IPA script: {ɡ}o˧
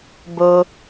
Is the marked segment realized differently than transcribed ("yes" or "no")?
yes